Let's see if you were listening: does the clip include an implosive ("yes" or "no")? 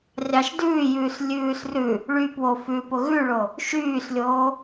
no